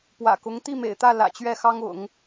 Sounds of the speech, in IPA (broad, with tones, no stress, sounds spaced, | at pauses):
p w ä̰˨˩ k ʊ˧˥ ŋ t̪ i˥˩ m ḛ˨˩ ɪ̯ t̪ ä˥˩ l ä̰˨˩ t͡ɕ ɥ ɛ˥˩ x ɑ˥ ŋ ʊ̰˨˩˦ ŋ